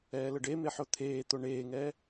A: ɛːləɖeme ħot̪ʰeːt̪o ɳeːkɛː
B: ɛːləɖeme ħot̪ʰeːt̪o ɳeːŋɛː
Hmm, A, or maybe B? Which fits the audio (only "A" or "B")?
B